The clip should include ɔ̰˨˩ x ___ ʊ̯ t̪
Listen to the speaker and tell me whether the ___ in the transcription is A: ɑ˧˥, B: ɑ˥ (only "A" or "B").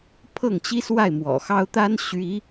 B